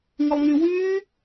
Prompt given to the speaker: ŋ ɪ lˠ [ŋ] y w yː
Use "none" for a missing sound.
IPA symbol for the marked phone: ŋ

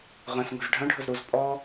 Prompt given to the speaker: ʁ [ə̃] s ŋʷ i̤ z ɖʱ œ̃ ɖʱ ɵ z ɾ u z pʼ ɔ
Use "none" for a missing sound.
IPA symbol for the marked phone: œ̃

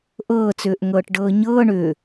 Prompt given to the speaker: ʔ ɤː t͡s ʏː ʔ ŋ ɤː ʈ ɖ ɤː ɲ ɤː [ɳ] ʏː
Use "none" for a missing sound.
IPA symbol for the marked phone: ɳ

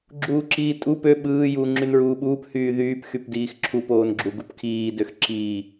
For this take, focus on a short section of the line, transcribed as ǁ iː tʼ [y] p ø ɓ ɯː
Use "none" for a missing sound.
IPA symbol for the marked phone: u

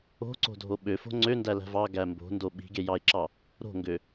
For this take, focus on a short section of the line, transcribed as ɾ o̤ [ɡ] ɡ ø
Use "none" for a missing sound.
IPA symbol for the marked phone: ŋ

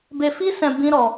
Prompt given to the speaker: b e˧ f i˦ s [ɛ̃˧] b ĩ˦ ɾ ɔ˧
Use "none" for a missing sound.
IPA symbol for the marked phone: ɛ̃˧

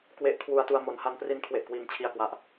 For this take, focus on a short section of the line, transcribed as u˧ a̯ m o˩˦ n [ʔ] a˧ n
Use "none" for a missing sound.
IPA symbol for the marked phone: h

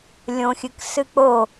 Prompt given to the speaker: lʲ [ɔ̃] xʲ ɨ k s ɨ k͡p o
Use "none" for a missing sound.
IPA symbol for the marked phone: õ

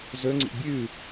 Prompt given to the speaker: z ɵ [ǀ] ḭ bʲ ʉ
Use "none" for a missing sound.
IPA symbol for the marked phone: ŋ͡ǀ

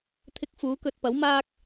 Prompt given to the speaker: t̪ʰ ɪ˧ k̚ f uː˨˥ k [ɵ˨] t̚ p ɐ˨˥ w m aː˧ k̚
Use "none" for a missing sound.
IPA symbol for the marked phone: ɵ˨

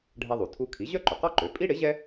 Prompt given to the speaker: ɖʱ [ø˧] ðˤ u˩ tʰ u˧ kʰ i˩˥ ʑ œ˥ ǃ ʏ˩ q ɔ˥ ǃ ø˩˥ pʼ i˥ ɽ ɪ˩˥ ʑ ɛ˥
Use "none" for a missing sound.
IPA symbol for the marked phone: ɛ˧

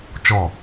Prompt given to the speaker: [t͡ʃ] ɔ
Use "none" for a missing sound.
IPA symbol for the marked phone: t͡ʃ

